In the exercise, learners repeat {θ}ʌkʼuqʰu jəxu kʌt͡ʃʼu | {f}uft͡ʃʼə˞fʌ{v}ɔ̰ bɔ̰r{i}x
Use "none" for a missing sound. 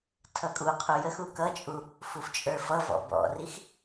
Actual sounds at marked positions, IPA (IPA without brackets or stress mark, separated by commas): tʰ, f, v, i